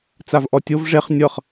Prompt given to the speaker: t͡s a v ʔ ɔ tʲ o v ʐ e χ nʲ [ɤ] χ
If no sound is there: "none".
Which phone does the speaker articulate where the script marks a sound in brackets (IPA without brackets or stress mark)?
ɤ